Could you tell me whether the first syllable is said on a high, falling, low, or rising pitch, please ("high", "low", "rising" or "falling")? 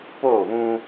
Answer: falling